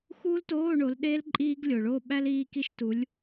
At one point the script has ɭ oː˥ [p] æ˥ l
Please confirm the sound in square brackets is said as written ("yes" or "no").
no